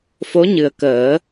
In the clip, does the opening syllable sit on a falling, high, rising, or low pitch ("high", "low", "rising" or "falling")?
rising